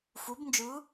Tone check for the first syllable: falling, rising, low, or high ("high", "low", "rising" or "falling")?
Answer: rising